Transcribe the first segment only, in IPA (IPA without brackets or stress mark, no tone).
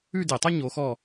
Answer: ʉ